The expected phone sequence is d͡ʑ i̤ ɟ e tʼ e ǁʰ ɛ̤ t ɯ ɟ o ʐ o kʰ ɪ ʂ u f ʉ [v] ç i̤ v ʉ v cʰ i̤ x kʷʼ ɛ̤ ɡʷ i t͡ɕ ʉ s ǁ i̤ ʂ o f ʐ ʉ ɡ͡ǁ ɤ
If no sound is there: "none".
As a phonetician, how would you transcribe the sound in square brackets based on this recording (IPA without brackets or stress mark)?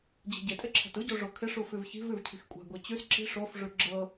v